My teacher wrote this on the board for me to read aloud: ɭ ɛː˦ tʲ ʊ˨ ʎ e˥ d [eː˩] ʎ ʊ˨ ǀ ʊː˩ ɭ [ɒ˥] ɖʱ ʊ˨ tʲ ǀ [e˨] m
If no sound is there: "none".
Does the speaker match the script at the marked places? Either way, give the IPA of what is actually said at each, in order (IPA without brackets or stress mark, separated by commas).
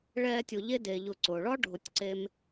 eː˩, ɒ˥, e˦